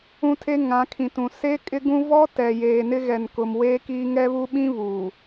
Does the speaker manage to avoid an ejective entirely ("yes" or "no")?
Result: no